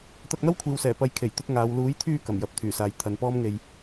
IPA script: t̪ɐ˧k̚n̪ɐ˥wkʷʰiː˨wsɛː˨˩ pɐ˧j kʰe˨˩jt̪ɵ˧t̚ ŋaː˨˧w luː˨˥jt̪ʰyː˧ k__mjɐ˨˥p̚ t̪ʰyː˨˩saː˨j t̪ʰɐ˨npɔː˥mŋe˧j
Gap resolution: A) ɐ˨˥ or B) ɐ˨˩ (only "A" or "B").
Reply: B